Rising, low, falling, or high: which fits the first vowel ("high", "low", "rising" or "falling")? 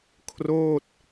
falling